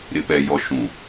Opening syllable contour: low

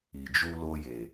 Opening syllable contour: low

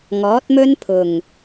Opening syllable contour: rising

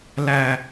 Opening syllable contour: high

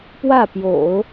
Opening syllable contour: falling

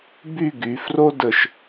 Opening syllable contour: falling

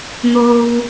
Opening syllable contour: high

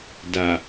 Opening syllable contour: low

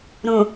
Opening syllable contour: low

